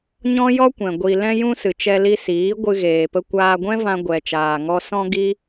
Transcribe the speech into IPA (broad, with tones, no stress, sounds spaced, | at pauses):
ɲ ɔ̃˦ j ɔ˦ kʷ ɛ̃˨ ɡʷ i˨ l ɛ̃˧ j ũ˧ s ɨ˨ t͡ʃ ɛ˧ l i˧ s iː˨˦ ɡʷ ɨ˧ ɣ eː˨ p ə˧ kʷ aː˧ ɡʷ ɛ̃˦ v ã˧ ɡʷ ɛ˨ t͡ʃ aː˨ ŋ ɔ˧ s ɔ̃˦ ɡ i˦